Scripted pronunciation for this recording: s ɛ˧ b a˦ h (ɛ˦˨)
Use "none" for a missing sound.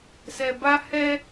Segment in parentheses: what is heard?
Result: ɛ˦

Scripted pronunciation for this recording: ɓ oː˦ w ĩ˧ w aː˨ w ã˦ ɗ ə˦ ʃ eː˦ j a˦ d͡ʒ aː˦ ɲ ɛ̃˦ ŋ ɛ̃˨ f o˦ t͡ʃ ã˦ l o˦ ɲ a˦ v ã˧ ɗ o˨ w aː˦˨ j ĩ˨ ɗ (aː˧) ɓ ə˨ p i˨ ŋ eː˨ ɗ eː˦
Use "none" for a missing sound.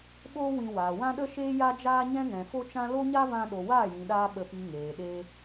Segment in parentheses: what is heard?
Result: aː˧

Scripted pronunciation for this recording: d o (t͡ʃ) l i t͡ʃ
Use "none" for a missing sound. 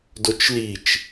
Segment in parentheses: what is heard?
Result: t͡ʃ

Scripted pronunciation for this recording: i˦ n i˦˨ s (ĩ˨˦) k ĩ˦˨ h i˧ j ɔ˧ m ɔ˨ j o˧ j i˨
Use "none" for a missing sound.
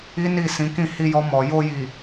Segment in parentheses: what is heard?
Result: ĩ˨˦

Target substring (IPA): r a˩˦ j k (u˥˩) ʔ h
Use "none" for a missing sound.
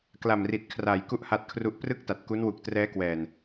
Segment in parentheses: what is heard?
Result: u˥˩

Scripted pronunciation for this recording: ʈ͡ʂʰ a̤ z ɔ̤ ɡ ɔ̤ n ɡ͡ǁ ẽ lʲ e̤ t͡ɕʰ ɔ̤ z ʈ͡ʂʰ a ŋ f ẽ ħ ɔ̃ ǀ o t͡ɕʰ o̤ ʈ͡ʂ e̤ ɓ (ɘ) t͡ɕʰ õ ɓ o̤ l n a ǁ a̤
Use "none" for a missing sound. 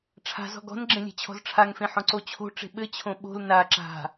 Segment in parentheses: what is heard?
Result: ɘ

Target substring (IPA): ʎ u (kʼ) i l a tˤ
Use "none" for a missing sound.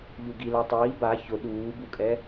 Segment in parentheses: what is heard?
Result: ɡ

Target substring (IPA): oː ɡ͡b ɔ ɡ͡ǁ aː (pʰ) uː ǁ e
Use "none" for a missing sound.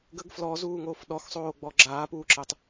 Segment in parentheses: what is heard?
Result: p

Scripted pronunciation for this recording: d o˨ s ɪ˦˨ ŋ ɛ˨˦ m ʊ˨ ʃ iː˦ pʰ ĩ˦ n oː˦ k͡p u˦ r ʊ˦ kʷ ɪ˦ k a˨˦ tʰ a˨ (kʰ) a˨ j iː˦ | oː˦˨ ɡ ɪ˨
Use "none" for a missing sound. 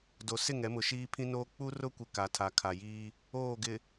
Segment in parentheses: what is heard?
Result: kʰ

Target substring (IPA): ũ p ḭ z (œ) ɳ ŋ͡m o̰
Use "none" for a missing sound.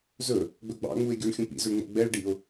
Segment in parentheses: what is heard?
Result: ø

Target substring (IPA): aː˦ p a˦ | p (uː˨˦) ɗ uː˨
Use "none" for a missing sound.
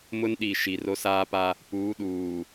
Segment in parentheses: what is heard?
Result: uː˨˦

